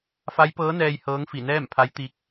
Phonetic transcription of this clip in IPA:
f a˧˥ j p ɤː˧˥ n ɛː˧ j h ɤː˧˥ ŋ f i˧˩ n ɛː˥˨ m pʰ a˧˥ j t̪ i˧˥ k̚

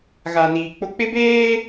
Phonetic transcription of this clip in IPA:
ɣ a˨ n iː˨ k͡p ʊ˦ k͡p ɪ˦ b eː˦

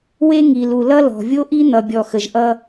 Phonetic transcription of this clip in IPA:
w e˦ ŋ i˨ l u˨ l ʌ˦ l ɔ̤˨ vʲ o˦ ʔ i˦ n̪ ʌ˨ bʲ ɔ˨ x ə˨ ʒ ʔ ʌ˦

